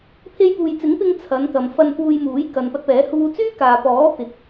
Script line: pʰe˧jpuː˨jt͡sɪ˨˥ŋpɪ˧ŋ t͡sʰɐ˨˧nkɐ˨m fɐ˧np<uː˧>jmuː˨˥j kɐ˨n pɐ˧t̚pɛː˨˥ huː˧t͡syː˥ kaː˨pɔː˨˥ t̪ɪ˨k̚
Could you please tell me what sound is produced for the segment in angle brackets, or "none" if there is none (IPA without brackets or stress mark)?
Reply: uː˧